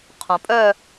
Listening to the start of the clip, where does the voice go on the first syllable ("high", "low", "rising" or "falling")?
low